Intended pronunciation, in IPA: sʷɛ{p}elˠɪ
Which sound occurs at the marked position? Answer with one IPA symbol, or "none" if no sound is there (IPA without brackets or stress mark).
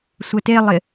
t